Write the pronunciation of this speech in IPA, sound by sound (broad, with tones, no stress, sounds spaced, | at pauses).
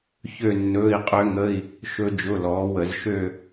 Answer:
ç ø˥˧ nː ɵː˧˥˧ i̯ qʼ ø˦˥ ŋ ə˧˥˧ i̯ | ʃ ɵ˦˥ d͡ʒ ʊ˧˥˧ l ɔː˨˥ w ə˧˩˧ z ʃ ø˥˧